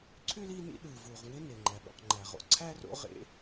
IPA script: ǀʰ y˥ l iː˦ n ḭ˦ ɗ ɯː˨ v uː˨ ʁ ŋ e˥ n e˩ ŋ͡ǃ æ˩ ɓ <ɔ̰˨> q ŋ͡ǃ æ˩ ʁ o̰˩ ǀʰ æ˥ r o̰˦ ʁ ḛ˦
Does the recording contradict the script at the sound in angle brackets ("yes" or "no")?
yes